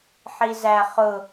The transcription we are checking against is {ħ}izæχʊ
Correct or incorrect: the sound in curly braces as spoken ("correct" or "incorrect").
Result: correct